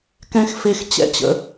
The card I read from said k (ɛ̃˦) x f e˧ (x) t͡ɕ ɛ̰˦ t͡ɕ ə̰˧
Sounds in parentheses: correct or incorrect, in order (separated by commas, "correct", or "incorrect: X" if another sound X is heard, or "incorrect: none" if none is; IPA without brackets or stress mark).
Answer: correct, correct